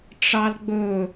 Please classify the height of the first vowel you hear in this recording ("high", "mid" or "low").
low